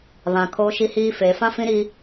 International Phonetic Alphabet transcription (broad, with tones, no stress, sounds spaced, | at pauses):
β ã˨ kʰ oː˦ ʃ i˦ h iː˦ f eː˨ f ã˦ f ĩ˦ ɾ i˦